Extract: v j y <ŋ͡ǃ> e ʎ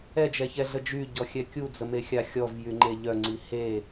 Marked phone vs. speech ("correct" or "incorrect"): correct